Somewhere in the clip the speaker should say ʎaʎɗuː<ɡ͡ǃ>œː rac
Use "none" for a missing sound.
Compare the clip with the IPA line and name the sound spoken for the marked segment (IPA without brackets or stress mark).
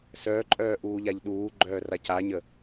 ɡ͡ǃ